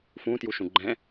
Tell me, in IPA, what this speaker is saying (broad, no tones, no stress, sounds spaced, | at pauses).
f ũ t j u ʃ ũ ɡ͡ǃ ɛ̃